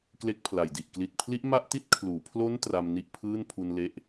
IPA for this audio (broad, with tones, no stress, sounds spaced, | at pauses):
k l e˦˥ k̚ pʰ l a˨˩ j d i˨˩ ʔ k l i˨˩ t̚ pʰ l i˦˥ ʔ m a˥˩ ʔ t i˥˩ t̚ kʰ l uː˩˦ pʰ l o˦˥ n t r a˧ m n i˦˥ ʔ pʰ ɯː˥˩ n pʰ u˧ n l e˦˥ ʔ